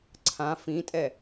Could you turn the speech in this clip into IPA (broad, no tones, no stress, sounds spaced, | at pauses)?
ǀʰ ã f ĩ tʼ ɛ